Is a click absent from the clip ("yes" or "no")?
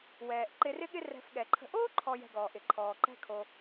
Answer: no